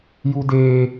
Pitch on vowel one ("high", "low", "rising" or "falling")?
high